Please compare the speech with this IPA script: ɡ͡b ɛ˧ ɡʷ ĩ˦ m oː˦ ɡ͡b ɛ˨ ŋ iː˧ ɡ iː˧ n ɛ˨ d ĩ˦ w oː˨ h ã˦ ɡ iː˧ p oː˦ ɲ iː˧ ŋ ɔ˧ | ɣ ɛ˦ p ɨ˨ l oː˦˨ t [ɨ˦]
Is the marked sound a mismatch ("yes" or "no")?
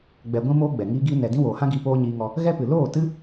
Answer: no